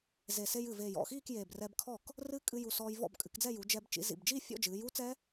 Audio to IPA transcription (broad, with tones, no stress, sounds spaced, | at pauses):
z e˨˩ s e˧ j ɨ˨˩ v eː˨˩ j ɔ̰˥˩ x iː˥˧ k j eː˨˩ b r ɛ˧ b kʰ ɔː˥˩ k | r ɨ˦˥ kʼ ɨ˧ j u˨˩ s ɔː˧ j v ɔ̰˥˩ b kʼ ɨ˩˧ k d͡z ɛ˥˧ j u˩˧ d͡ʒ ɛ˧ b t͡ʃ ḭ˩˧ z ḭ˨˩ b d͡ʒ iː˥˧ fʲ ɔ̰˥˧ d͡ʒ ɨː˩˧ j u˦˥ t͡s ɛ˦˥